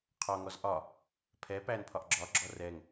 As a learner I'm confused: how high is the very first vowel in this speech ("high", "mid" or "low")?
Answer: low